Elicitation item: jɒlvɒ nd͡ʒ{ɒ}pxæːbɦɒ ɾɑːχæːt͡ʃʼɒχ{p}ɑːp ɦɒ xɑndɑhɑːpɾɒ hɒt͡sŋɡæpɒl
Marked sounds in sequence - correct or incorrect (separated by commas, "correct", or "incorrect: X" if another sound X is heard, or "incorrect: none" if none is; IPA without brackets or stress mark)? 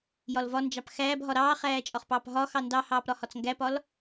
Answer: incorrect: ɑ, correct